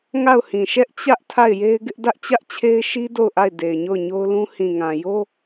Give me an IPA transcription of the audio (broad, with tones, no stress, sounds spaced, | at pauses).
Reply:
ŋ a˦˨ ʊ̯ h ĩ˨ ʃ ɛ˦ ʔ t͡ɕ ä˦ ʔ tʰ a˦˨ ɪ̯ j e˦ ɪ̯ ɡ ɪ˦ ʔ d ä˦ ʔ t͡ɕ ä˦ ʔ t͡ɕʰ e˦ ɪ̯ ʃ i˦ d o˦˨ ʊ̯ ʔ a˦˨ ɪ̯ d e˨ ɪ̯ ɲ o˦˨ ʊ̯ ɲ o˦ ʊ̯ l ũ˦ h ĩ˨ ŋ ã˨ j o˦